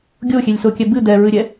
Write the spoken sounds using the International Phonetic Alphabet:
ɡʲoxʲelʲsokʲɛ bɨ d̪ɛɹɨɾʲɛ

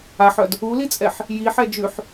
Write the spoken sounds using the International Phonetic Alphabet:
aħœd | ulit͡sʼɛħ | jiħɛ d͡ʒʉħ

